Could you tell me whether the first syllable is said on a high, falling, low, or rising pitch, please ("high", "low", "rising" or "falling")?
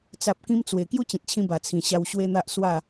low